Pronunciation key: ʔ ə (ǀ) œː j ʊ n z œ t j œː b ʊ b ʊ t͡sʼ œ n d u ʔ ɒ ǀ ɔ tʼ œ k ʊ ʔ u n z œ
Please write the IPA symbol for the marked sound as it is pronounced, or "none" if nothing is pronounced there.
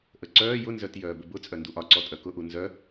ǀ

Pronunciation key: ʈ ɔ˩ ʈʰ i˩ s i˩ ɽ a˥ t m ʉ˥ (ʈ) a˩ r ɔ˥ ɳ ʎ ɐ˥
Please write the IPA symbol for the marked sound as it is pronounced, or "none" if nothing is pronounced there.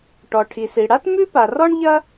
p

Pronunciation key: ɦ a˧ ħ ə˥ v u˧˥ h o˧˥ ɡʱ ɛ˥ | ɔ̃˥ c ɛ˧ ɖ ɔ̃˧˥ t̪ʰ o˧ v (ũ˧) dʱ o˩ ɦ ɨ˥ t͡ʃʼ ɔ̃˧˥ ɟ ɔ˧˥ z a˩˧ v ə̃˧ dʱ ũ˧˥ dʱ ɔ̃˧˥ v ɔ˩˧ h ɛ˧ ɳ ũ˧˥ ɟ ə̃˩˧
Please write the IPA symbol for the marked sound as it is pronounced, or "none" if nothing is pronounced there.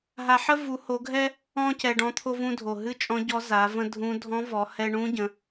ũ˧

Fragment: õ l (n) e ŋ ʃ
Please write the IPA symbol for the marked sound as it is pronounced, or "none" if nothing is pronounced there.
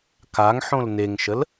n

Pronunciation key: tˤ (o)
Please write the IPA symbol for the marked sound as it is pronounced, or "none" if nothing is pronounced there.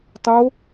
o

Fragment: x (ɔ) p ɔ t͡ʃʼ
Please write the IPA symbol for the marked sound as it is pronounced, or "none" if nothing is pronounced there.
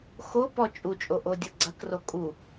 o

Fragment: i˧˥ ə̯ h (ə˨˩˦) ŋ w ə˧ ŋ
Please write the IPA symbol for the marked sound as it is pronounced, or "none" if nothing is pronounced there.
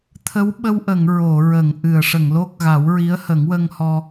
ə˨˩˦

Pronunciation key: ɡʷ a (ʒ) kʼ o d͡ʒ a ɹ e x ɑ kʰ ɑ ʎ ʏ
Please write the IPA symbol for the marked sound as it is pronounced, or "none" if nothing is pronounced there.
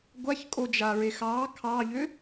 ç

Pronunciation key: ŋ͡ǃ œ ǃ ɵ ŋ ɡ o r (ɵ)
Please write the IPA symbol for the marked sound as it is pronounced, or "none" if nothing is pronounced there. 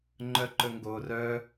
œ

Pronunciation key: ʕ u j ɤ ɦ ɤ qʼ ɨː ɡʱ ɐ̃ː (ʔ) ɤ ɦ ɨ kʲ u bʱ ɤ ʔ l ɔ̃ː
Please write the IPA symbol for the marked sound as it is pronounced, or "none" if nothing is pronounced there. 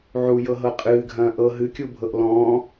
ʔ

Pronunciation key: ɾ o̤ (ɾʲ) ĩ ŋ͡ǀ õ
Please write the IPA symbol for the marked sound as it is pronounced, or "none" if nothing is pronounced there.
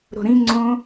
ɾ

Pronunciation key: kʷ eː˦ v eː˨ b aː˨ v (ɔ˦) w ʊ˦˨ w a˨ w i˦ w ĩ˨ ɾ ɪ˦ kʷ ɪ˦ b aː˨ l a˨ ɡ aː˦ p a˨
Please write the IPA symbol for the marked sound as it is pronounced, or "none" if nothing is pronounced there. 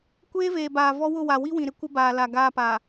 ɔ˦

